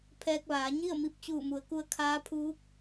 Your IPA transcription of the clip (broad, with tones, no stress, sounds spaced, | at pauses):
pʰ ɛː˧ k̚ ʋ aː˩˧ ɲ i˥˨ ə̯ m i˧ p̚ t͡ɕ uː˧˩ m u˩˧ ə̯ k u˧ ə̯ kʰ aː˧˥ pʰ uː˧˥ k̚